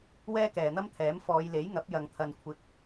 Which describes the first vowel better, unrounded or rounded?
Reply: unrounded